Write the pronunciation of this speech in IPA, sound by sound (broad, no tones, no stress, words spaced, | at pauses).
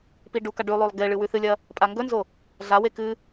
piɖuka ɖʉlˠolˠ ɡe ɭɨwʉθɨlʲɐ | pʼaŋɡɵnzo | ɮawe kɨ